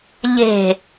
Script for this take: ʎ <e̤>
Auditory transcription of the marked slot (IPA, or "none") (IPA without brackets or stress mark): e̤